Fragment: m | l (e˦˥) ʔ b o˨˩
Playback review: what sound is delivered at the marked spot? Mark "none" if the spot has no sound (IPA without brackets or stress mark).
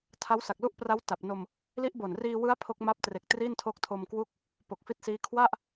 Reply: i˦˥